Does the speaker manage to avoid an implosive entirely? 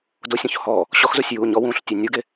yes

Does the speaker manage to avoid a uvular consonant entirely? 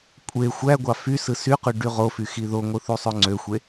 no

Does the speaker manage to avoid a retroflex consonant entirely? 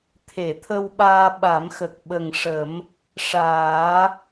no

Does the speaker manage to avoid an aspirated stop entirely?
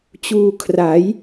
no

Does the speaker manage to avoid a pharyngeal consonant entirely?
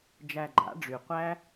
yes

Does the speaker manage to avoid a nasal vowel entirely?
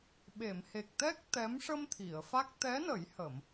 yes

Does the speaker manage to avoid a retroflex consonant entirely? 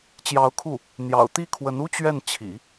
yes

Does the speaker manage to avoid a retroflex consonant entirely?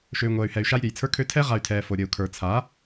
yes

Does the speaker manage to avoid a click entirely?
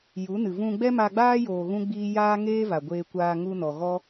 yes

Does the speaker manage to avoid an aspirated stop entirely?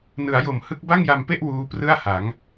yes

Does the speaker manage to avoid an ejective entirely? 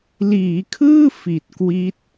yes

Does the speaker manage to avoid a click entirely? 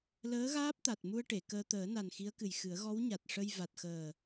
yes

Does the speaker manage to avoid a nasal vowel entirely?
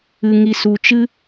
yes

